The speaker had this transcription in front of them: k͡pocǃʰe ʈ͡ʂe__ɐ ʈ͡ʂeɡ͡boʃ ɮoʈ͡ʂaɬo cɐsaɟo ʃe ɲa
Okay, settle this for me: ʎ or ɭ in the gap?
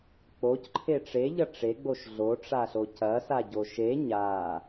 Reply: ʎ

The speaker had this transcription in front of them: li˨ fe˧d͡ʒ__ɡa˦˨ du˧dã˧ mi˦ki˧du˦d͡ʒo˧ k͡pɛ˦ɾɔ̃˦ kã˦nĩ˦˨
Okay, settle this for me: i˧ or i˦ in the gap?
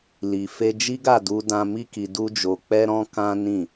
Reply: i˦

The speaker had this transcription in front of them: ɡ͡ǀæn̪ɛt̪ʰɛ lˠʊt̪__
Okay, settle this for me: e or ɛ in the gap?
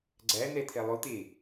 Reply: e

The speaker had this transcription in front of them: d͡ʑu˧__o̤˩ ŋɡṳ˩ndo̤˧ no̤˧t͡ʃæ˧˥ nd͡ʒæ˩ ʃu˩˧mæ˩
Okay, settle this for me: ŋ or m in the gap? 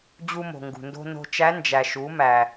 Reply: m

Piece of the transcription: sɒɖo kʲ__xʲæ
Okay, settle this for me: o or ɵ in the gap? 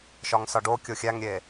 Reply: o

